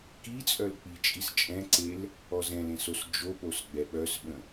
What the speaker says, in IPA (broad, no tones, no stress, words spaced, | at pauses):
kit͡sʼœl k͡pit͡ʃʼis t͡ʃʼɛ̃ǀel | ɔzɛ̃lẽ sosd͡ʒopos ɡ͡bɛɓœsɓə̃